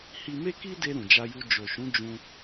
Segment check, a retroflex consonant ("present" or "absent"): absent